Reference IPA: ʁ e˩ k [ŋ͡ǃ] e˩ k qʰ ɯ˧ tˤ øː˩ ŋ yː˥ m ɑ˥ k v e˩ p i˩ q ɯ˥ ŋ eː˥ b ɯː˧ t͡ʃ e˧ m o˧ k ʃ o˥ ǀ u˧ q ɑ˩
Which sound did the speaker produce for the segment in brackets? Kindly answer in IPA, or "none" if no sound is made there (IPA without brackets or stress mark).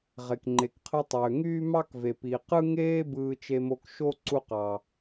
ŋ͡ǃ